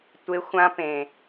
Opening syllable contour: high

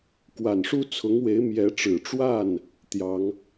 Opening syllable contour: low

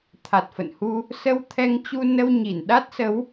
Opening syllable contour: low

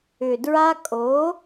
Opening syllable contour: low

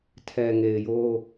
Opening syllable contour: low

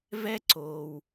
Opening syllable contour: high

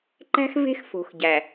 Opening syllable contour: high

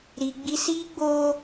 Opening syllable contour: high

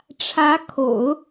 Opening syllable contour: rising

